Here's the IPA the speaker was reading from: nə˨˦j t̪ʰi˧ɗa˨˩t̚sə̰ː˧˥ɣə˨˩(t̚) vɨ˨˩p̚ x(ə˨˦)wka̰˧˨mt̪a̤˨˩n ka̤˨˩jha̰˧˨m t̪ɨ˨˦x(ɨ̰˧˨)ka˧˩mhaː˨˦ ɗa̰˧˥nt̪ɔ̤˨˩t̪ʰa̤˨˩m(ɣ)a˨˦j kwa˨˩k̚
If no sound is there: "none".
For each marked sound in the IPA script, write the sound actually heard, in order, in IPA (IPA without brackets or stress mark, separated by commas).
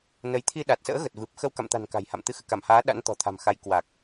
t̚, ə˧, ɨ̰˧˨, x